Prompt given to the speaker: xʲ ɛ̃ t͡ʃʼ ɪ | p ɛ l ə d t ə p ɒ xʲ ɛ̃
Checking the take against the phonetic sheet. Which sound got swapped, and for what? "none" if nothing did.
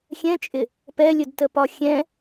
l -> lʲ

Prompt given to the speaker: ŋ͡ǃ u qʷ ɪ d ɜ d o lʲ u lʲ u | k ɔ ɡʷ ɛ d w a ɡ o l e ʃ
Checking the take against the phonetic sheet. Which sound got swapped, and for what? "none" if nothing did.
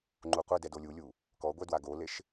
ɜ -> ɛ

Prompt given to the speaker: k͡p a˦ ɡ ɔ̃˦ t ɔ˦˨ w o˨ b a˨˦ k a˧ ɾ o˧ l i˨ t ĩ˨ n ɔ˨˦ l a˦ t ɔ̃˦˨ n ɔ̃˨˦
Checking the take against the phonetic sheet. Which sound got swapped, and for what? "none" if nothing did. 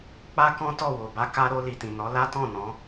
ɡ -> k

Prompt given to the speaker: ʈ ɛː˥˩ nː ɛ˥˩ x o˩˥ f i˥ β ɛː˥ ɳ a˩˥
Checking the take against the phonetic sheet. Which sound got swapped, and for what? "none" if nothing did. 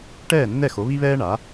f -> β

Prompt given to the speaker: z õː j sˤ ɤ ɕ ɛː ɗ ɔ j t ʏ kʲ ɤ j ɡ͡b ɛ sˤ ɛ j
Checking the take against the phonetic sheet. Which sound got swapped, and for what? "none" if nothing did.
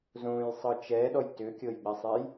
ɕ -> t͡ʃ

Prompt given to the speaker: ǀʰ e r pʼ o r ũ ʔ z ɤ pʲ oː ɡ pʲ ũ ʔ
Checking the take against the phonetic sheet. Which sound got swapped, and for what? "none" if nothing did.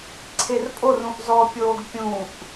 ɤ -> ɔ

